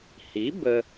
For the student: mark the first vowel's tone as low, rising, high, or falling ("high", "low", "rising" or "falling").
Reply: rising